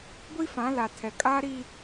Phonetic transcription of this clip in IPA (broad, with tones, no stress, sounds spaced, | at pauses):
ɡʷ i˦ f ã˨˦ l a˨ tʰ ɛ˨ kʼ aː˦ ɾ i˦